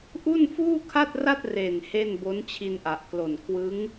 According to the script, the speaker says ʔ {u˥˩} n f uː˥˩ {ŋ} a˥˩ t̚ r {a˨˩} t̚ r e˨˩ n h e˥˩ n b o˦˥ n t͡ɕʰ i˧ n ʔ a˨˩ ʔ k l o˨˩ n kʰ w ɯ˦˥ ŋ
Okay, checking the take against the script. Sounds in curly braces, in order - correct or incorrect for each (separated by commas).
correct, incorrect, incorrect